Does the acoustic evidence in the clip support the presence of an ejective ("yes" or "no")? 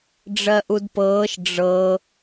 no